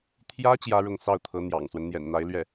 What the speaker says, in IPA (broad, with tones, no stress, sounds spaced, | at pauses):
t̪ʰ j ä˥ t͡ɕ j ä˥ ɻ ʊ˥˧ ŋ s ɑ˥˩ ʊ̯ t̪ʰ ɤ˧˥ n̪ j ɑ̰˨˩ ŋ s w ə˦ n n̪ j ɛ̰˨˩ n n̪ a˧˥ ɪ̯ l ɥ ɛ˥˩